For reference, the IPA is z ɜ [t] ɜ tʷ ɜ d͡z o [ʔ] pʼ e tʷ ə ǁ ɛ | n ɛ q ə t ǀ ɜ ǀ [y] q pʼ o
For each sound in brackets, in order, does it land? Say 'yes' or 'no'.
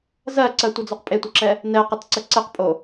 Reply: no, no, no

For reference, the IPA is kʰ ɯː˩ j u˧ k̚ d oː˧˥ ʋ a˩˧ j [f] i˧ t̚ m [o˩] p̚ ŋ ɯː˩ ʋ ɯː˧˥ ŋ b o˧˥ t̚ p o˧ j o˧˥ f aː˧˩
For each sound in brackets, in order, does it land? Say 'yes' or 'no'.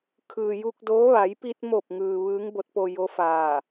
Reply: no, no

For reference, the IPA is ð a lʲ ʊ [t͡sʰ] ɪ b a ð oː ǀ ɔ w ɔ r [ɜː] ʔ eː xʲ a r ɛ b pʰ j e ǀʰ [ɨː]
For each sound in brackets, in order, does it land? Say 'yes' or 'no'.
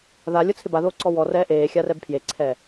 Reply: yes, no, no

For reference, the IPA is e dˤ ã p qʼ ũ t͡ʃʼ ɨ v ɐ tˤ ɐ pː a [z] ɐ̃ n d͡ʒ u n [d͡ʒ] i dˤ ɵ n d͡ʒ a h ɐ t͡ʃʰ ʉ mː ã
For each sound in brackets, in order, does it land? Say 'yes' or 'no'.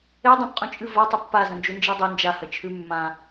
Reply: yes, yes

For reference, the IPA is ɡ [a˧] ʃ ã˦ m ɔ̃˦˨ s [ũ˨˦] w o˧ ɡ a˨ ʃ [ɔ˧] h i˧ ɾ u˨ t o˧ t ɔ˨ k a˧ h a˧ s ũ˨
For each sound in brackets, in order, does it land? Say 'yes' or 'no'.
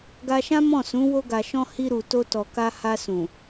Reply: yes, yes, no

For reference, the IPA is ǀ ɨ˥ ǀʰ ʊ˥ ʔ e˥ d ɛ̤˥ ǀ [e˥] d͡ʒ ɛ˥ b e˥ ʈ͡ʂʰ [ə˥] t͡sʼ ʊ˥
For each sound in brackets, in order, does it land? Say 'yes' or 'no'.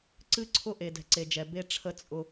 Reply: yes, yes

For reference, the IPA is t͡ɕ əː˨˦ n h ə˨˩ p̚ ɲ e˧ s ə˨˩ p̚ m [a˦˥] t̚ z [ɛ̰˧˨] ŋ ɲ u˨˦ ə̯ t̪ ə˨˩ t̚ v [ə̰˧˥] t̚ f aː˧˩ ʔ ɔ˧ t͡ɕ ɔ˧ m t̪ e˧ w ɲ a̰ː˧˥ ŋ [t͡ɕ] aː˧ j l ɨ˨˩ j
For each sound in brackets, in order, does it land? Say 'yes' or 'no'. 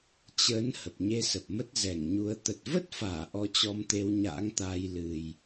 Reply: no, no, no, no

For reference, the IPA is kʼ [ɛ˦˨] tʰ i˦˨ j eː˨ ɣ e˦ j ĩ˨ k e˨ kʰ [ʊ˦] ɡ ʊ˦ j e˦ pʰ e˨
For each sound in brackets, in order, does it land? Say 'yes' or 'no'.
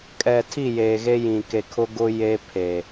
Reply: no, yes

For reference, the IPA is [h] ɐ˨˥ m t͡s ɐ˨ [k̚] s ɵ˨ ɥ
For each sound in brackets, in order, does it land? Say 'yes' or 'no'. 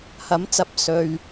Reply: yes, no

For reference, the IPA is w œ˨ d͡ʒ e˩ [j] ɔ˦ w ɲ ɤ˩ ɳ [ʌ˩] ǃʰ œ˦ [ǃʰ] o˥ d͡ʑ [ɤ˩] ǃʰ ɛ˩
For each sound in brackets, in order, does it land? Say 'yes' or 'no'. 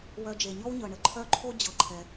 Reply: no, no, yes, yes

